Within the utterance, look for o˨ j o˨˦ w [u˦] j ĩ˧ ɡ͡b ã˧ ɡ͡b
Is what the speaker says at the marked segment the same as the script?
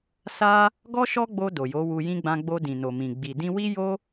no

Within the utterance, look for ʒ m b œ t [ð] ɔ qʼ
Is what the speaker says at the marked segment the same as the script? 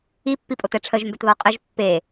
yes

